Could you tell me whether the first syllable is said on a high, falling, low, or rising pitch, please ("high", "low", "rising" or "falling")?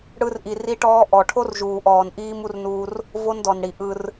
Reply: high